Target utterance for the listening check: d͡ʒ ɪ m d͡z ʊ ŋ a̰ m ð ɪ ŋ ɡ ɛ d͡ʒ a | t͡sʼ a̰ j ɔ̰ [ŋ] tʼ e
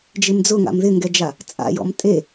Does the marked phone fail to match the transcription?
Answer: yes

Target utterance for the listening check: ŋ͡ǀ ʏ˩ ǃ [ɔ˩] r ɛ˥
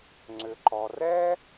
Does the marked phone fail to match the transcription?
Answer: no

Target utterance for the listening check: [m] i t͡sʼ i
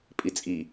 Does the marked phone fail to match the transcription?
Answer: yes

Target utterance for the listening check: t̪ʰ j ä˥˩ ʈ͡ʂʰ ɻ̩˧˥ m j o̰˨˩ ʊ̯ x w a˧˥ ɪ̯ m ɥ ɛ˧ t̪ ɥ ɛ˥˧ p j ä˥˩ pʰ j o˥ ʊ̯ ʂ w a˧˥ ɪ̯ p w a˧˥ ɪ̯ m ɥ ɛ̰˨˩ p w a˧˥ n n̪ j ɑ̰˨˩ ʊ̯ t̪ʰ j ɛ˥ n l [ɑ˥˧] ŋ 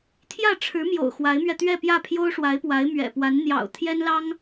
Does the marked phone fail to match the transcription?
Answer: yes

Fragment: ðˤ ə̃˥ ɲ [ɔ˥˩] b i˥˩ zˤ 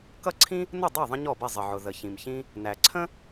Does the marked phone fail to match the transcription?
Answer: no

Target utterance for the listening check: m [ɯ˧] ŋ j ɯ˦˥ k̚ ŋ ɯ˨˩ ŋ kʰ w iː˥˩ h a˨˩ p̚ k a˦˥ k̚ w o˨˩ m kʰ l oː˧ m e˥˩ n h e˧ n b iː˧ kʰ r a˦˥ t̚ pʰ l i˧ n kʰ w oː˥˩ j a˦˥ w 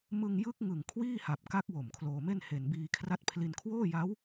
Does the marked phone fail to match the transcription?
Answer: no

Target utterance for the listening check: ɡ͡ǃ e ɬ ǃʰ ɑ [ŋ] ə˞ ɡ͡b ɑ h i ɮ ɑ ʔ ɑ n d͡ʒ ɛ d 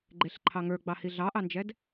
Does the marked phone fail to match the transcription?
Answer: no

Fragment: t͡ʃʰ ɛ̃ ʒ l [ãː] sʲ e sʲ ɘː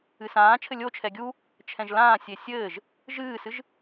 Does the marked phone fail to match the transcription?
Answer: no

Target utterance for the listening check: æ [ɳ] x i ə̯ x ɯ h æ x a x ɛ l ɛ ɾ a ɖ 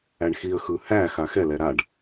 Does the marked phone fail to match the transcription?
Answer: no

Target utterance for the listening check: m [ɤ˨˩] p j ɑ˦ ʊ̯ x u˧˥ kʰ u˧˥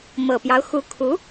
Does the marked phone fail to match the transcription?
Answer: no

